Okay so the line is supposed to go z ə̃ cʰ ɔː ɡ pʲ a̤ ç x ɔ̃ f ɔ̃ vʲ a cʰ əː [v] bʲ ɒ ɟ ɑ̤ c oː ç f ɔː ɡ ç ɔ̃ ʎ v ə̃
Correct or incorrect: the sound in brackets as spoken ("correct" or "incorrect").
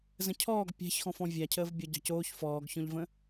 correct